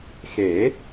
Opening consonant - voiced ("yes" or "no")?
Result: no